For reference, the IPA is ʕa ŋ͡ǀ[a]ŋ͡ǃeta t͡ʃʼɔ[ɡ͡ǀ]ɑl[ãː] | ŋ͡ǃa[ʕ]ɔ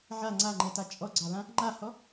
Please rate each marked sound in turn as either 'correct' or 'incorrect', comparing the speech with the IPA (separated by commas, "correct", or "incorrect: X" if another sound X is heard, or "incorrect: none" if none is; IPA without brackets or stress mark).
correct, correct, incorrect: ã, incorrect: h